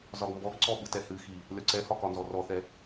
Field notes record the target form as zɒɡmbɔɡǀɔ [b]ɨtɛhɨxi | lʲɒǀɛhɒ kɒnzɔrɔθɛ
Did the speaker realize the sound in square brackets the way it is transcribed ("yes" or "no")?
no